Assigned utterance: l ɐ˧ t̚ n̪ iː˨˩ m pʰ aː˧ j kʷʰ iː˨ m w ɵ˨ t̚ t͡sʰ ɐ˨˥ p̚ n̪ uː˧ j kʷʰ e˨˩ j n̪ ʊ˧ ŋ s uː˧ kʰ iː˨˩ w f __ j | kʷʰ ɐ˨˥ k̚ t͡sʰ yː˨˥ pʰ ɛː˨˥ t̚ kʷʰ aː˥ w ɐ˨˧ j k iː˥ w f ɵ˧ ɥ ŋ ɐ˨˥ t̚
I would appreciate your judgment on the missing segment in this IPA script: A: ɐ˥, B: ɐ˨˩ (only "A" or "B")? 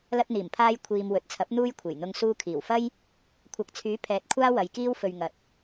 A